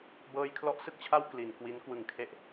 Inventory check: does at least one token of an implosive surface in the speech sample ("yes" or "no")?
no